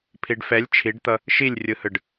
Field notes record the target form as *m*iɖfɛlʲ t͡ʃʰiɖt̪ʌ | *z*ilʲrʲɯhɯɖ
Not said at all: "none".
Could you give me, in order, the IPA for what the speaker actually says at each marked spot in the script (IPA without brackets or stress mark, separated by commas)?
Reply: pʰ, ʃ